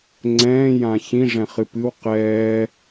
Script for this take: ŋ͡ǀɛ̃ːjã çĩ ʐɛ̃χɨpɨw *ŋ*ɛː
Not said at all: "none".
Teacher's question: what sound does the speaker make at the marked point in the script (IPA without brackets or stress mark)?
q